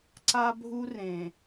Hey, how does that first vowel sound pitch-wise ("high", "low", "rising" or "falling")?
high